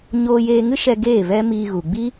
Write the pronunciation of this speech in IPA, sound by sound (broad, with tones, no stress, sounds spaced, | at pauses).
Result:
ɲ oː˧ j eː˧ ŋ ɨ˦ ʃ ɛ˧ ɡ eː˦˨ v ɛ˦ m iː˧ ɣ u˨ ɡ͡b i˦